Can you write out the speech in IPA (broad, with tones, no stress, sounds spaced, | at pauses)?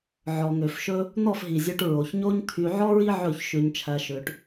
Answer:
ʕ ɔ˨ ŋ ø˨ f ʃ ɵ˦ | n̪ ɔ˦˨ f ɦ i˨ zʲ ø˧ ʈ ɹ o˨ ç ɲ o˦ ɲ t̪ʰ y˧ ʕ ɔ˦ ɹ i˦ ʕ ɵ˦˨ ç ʃ ʉ˧ ɲ t͡ʃʰ æ˧ ʃ ø˧ ʈ